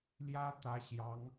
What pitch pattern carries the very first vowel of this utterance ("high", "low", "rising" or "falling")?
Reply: high